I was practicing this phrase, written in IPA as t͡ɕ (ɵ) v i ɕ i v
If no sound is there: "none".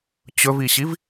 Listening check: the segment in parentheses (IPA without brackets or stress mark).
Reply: ɵ